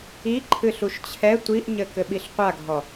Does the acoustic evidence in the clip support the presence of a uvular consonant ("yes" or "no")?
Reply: yes